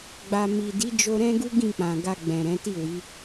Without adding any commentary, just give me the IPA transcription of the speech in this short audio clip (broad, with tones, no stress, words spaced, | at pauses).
ɡ͡ba˨mi˨di˨˦ d͡ʒo˧ɾɛ̃˦ɡu˦ ɡĩ˦˨k͡pã˨ɡa˧ ɡ͡bɛ̃˨ ɾɛ̃˨˦ti˦˨wi˨˦